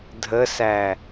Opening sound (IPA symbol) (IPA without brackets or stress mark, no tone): dʱ